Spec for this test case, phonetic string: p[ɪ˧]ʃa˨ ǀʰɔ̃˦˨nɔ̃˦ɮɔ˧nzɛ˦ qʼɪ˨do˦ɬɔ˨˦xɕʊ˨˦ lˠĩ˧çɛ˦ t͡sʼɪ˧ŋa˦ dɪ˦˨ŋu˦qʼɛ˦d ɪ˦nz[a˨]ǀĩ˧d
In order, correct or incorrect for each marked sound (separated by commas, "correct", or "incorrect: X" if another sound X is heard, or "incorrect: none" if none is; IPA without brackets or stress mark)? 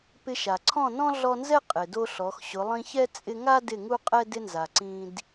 correct, correct